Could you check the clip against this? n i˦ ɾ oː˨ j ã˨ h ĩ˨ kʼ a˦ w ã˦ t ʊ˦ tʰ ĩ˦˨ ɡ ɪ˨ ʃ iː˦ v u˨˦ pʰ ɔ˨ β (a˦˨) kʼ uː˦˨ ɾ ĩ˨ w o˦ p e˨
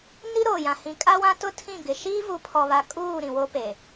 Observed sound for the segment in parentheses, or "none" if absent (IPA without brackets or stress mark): a˨